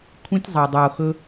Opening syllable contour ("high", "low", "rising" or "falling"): high